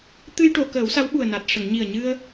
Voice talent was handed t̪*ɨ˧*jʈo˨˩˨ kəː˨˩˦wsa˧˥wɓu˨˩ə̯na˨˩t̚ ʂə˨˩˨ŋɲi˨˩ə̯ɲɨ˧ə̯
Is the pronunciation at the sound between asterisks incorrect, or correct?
correct